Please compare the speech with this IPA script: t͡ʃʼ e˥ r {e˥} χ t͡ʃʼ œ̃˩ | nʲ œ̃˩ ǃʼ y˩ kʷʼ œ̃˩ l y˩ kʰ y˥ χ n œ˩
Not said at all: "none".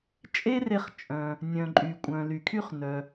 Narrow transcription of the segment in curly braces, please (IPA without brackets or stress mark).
e˧